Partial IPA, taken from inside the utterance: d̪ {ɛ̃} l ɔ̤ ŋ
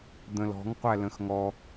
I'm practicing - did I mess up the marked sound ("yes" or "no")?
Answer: yes